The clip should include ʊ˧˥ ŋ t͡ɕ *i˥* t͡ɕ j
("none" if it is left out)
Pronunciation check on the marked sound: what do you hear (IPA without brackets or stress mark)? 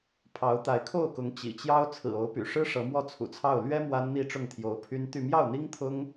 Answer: ḭ˨˩